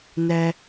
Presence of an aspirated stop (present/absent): absent